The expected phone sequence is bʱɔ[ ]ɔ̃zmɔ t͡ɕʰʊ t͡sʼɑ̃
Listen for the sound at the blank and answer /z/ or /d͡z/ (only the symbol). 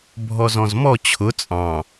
z